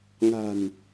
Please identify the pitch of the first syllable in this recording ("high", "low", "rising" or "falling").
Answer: low